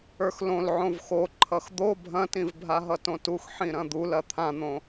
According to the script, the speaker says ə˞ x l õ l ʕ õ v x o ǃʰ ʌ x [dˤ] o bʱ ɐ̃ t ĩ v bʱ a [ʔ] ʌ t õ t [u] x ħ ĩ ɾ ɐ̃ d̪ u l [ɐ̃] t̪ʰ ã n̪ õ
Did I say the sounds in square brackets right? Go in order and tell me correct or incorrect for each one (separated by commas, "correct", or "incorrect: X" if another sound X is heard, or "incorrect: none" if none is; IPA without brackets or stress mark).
incorrect: d̪, incorrect: ɦ, correct, incorrect: ɐ